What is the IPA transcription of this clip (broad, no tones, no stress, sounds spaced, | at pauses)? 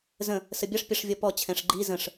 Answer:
z ə̃ | s ə bʲ ʌ ʂ pʲ ʌ ʂ vʲ ɔ p ɔ t͡ɕʰ ɛ̃ ʂ ɡ͡ǃ i z ə̃ ʂ